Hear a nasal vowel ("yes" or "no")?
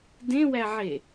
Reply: yes